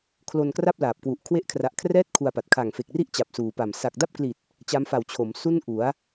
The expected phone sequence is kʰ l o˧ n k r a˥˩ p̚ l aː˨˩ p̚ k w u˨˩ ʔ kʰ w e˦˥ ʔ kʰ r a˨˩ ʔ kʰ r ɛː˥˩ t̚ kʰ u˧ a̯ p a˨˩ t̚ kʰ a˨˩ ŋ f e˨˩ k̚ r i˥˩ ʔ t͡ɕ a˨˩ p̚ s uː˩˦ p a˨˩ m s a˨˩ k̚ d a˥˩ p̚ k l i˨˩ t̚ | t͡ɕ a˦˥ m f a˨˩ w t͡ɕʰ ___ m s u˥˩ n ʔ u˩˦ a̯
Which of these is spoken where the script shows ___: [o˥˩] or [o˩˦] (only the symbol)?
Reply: o˩˦